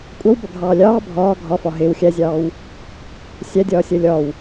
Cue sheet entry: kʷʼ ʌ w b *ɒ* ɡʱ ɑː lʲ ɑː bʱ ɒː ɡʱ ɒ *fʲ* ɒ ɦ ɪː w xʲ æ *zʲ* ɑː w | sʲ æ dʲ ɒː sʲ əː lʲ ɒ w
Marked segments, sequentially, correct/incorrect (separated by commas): incorrect, incorrect, correct